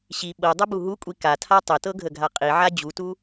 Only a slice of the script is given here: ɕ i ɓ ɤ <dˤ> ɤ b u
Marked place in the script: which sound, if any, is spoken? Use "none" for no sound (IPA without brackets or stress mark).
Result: dˤ